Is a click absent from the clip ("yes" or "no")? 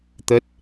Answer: yes